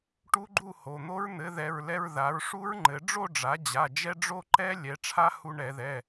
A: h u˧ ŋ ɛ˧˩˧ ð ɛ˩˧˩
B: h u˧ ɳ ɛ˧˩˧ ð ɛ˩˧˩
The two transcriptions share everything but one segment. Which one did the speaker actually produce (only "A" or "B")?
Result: B